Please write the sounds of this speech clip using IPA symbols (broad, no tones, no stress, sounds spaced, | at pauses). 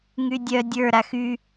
ŋ y dʲ œ dʲ ə˞ ɾ a x y